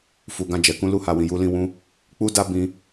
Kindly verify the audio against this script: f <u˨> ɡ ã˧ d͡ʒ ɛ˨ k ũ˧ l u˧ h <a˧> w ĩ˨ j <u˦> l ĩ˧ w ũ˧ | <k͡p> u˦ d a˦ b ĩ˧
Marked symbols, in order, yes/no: yes, no, no, yes

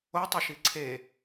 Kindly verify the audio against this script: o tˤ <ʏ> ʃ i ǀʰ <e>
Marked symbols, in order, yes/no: yes, yes

